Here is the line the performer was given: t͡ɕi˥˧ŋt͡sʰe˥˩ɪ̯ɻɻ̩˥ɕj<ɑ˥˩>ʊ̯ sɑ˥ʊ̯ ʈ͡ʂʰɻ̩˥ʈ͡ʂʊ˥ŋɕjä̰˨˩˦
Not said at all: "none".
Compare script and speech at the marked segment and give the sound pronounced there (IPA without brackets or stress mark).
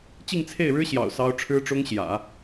ɑ̰˨˩